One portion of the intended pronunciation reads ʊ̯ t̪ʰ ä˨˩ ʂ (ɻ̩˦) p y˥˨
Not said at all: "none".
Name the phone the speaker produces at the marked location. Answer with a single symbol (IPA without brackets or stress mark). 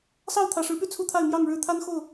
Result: ɻ̩˨˦